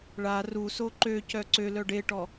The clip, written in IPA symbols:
ɭ a r u s o ǃ ø c œ ǀ ø l œ ɖ e ʈ ɔ

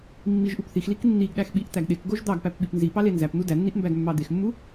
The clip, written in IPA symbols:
mː i ʒ ʔ u p θ i x l i k nː i ɡ ɗ æ x ɓ i ʔ t̪ æ ɡ ɗ e k ɡ o ʒ d̪ ɑ ɡ p æ p ɓ i p n z i p ɑ l e n z æ p n̪ u d æ nː i ʔ m b æ ɡ mː ɑ d̪ e x mː u

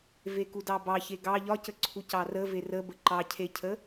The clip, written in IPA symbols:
v e k u d ɑ b ɑ ç e ɡ ɑ ʎ ɒ c ə ǀʰ u c ɑ r ə v e r ə b ə ǃ ɑ cʰ e cʰ ə

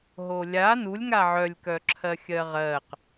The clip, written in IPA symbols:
ɦ o lʲ a n u lʲ ŋ a ʕ œ lʲ k œ ǁʰ ɜ xʲ ɜ ʁ ɜ q

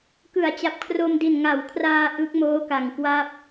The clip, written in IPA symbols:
k ɯ˩˦ a̯ t͡ɕ a˨˩ p̚ kʰ r o˧ m d i˨˩ n ŋ a˩˦ w kʰ r aː˧ ʔ ɯ˦˥ k̚ m oː˦˥ k a˨˩ ŋ k w a˥˩ p̚

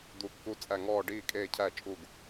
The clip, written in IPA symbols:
d̪ u˨˩˦ kː u˧˩ t͡sʼ æ˧˩ ŋ ɔː˥˩ ɖ iː˥˩ kʼ eː˥˩ cʰ æ˥˩ t͡ʃʼ u˥˩ ɡ

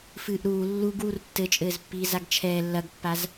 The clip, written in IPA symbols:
f ɨː ʔ ɾ uː lː u ɡ w u r tː ɘ t͡ʃʼ ɘː z pː iː z a ɡ t͡ʃʰ ɛː lː ɐ ɡ pː a z

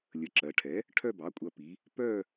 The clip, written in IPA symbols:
lʲ ə˩˥ ǁ ɜ˩˧ ʈʰ ɛ˩˥ | ʈʰ œ˥˧ b ɑ˩˥ kʷʼ ɐ˧ p i˩˧ | p œ˥˧

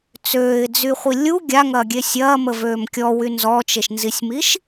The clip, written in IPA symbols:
t͡s øː ɪ̯ d͡z y χʷ i lʲ u ɡʲ a ŋ ɐː ɡʲ e sʲ ɐː m ə v øː m kʲ ɔ w y n z ɔ t͡ʃ e ʃ n z i sʲ m i ʃ

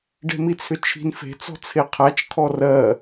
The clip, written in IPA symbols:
ɖ e̤ m i t͡sʰ ʏ t͡ʃʰ i̤ n f e̤ t͡s ɔ̤ t͡sʰ e qʰ a t͡ʃ kʰ ɔ r ɜ

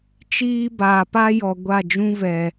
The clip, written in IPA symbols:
t͡ʃ iː˦ b aː˨ p a˦ j ɔ˨ ɡʷ a˦˨ d͡ʒ ũ˦ v ɛ˨

